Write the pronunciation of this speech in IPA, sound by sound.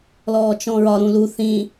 l ɔː t͡ʃ ɔ̃ ɹ ɒ ɾ ũ l u θ ĩ

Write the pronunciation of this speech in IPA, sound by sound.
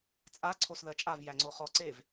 t͡sʼ a ǀʰ o s ð ɜ t͡ʃʼ a v j æ ŋ͡ǀ o χ ɔ ǀ e v

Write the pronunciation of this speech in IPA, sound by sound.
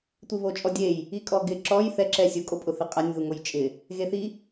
tʷ i β o t͡ʃʼ ɔ dʲ e j | i kʼ ɔ ɡ ɪ ǁ ɔ j θ ɛ ǁ ɛ sʲ ʊ kʼ o pʼ ʊ θ ɪ qʼ a nʲ ð u ŋ o j t͡ʃʼ ɪ | ɣ e θ i

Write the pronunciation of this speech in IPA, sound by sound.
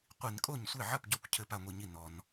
qʷ i˧˩˧ n kʼ o˥˩ ɲ sʷ e˥˩ ʕ ɐ˥˩ p ɟ ɔ˥˩ kʷ cʰ ɘ˧˩˧ p a˥˩ ŋʷ i˥˩ ɲ i˥˩ n ɔ˧˩˧ n

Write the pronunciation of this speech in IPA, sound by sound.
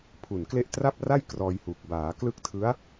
pʰ u˨˩ n k l e˦˥ ʔ t r a˥˩ p̚ r a˥˩ j k r ɔː˧ j h u˨˩ k̚ b aː˩˦ k l ɯ˦˥ k̚ tʰ ɯ˦˥ a̯

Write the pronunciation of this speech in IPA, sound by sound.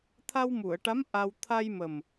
t̪ʰ a˧ w m u˨˩˨ ə̯ ʈ a˧˥ m ʔ a˧ w t̪ʰ a˧ j m ə˨˩ m

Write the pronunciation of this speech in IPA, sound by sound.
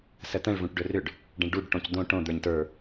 s ə t̪ ə̃ ɭ v ũ ʈ ɖ ɵ r ʏ ɖ | ɖ ə̃ ɭ ɖ u ɖ ʈ õ c d̪ õ ʈ õ d̪ ə˞ ɲ t ə˞

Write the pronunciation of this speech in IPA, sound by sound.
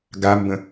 ɡ a m b ə̃

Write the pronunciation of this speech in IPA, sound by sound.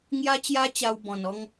ŋ j a˦ t͡ɕ j a˦ t͡ɕ a˧ w b ɔ̃˨˩ n ɔ˧ ŋ

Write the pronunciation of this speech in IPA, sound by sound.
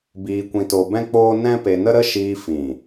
b iː˧ kʷ ĩ˧ t o˧ b ɛ̃˦ k͡p oː˦ n ɛ̃˦ p e˧ n ə˦ ɾ ə˦ ʃ iː˧ f ĩ˨

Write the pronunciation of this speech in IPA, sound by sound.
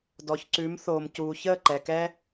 d ɔ˨ ç ǀ ʉ˨˦ m θ oː˨ m c uː˨ ç əː˦˨ ǃ ɛ˨ k ɛ˦

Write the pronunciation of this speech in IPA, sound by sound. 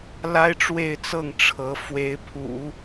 l a˥ ɪ̯ ʈ͡ʂ w e˥˧ ɪ̯ t͡s ɤ˥˩ ŋ ʈ͡ʂʰ ɤ˧˥ f w e˧˥ ɪ̯ pʰ ṵ˨˩˦

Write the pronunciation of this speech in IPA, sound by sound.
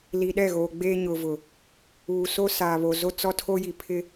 l i˨ ɗ ɛ˦˨ ɣ oː˨ ɡ͡b eː˦ ɲ ʊ˨ v ʊ˨ | uː˨ s o˦ s aː˨ β o˨ z o˦ t͡s ɔ˦ tʰ o˦ j i˨ pʰ ɪ˦

